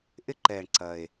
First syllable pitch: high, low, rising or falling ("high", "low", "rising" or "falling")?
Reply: falling